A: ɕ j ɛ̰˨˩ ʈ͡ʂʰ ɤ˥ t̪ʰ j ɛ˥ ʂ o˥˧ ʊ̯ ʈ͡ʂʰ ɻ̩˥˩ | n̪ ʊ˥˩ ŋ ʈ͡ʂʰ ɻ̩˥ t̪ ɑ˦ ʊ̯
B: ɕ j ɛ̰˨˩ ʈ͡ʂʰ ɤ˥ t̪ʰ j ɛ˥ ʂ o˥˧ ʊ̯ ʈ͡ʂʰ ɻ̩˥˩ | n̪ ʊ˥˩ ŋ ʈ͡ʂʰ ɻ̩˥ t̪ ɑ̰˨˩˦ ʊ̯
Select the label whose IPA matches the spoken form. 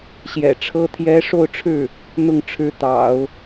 B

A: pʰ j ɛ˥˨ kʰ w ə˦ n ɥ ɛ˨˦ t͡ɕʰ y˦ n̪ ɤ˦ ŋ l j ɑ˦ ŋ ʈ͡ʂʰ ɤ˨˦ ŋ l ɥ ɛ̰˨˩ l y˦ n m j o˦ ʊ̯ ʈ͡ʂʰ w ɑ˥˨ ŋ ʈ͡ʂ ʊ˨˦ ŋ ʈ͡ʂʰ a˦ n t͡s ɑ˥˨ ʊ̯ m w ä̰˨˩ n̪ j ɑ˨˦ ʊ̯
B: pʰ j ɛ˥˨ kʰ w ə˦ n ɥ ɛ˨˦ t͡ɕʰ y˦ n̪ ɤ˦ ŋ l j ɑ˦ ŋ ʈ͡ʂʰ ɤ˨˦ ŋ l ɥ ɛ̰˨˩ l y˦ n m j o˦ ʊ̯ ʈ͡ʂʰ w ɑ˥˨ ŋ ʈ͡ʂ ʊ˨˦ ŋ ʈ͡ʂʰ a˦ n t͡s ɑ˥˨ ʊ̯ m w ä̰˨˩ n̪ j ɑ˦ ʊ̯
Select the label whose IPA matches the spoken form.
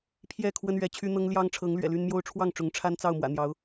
A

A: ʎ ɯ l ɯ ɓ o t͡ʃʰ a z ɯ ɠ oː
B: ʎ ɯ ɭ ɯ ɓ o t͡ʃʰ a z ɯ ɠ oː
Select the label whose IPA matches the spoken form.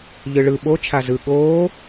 B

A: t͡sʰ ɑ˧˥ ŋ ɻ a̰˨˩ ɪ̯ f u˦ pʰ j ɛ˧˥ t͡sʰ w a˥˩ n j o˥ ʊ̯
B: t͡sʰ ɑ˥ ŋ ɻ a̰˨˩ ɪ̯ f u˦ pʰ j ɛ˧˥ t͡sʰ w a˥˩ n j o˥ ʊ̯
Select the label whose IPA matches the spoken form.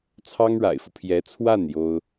B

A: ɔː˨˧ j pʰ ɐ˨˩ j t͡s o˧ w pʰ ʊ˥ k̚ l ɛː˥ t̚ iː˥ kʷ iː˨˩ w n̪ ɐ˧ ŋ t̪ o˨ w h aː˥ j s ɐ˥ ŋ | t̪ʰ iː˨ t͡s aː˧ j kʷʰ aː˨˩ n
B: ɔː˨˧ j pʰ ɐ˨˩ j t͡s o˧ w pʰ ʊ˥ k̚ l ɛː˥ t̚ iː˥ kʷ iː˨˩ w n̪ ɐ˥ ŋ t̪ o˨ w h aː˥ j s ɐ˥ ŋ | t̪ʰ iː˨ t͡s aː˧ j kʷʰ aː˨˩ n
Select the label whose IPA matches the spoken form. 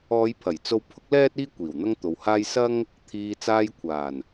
B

